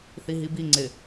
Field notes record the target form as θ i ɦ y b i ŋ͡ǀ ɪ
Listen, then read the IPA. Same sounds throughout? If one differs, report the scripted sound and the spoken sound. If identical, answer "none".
y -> i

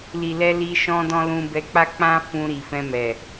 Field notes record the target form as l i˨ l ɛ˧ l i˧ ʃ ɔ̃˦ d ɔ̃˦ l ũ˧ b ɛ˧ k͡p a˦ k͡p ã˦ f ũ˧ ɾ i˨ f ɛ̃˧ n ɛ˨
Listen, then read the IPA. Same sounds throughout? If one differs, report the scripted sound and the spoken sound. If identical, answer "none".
n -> m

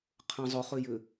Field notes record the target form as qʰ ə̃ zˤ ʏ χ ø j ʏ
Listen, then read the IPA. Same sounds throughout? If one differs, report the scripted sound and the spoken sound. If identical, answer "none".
none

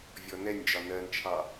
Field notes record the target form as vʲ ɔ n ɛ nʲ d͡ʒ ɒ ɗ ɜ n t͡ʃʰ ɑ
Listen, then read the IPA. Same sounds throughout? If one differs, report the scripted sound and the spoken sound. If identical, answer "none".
ɗ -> n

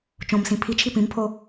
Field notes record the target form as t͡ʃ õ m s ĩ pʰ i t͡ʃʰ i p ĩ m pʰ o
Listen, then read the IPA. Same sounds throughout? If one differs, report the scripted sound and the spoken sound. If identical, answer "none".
none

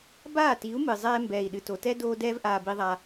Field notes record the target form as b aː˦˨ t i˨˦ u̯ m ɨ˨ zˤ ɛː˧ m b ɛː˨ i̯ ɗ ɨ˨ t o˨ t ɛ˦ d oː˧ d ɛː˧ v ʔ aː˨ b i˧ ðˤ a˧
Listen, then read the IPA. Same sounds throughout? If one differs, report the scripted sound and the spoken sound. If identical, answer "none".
none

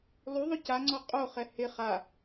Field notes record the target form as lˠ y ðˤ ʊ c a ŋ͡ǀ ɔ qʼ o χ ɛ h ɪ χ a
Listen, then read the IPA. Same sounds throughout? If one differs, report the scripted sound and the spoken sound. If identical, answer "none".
none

